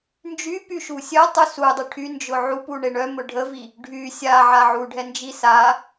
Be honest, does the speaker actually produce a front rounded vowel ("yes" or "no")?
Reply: yes